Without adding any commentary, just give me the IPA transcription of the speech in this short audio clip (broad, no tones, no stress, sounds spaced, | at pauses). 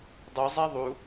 dˤ u zˤ æ ðˤ u